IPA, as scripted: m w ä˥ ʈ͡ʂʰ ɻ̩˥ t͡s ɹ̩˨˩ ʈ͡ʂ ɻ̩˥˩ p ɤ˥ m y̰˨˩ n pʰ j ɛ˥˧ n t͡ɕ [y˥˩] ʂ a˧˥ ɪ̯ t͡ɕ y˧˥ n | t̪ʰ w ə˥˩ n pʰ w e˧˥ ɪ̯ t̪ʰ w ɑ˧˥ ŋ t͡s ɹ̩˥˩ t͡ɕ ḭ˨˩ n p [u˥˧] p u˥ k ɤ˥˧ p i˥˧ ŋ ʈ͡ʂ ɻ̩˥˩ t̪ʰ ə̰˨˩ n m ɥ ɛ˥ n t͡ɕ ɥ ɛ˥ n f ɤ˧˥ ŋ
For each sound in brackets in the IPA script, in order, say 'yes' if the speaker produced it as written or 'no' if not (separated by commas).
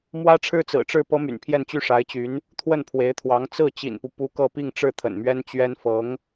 yes, no